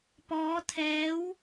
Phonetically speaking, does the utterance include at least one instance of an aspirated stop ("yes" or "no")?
yes